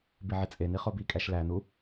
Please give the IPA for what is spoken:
biʕit͡sʼe niχobi kʼæʃlæ nu

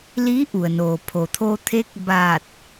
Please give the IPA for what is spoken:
liː˧˥ʔu˩ə̯noː˩ pʰo˩t̪ʰo˧t̪ʰe˧˥k̚ baː˧˩t̚

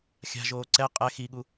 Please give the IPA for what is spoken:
xʲa̤ʒoː ǀɛ qʼɛ xiɠu

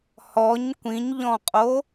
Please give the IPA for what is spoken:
hɔɲ kʷĩɲʎɔ̃qʼo

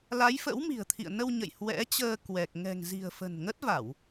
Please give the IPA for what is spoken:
la˨˦jfə̰˧˥wmi̤˨˩ə̯t̪ʰḭ˧˨ə̯ nə˧wɲə̰˧˨j hwɛ̰˧˥t͡ɕəː˧ kwɛ˨˩k̚ ŋɛ̤˨˩ŋzi̤˨˩ə̯ fə̤˨˩nŋə˦˥t̚va˧˩˨w

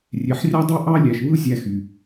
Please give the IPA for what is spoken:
rʲe˧ħrʲɑ˥dˤɯ˥ ʔɑ˥lʲæ˧ʃβɯ˥ zʲæ˧xy˩

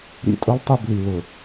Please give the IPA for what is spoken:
ɾḭ˦tʼʊ˦lˠtˤi˦˨bli˨ lʊ˨

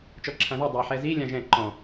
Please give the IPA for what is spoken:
t͡ʃɔǁʰãðɛ dˤa ħɛzi lʲãʒɛ̃ ǃɔ̃

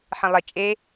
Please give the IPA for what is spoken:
ħẽlˠe t͡ʃʼe

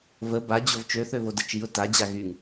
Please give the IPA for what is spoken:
və bad͡ʑov t͡ʃøθøvodə t͡ʃiʊ̯ tad͡ʑa ɣyŋ

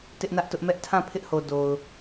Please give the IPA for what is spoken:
tɪ˦ʔnä˦ʔtʊ˦ʔ mɛ˦ʔtʰã˦˨ pʰɪ˦ʔho˨ do˨ʊ̯

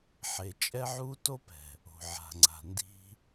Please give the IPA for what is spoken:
ħe˨t͡ʃʼɛ˦ʕu˦ to˦pɛ̤˨ | o̤˨ʕa̤˨ŋ͡ǀa̤˨ ndi̤˦

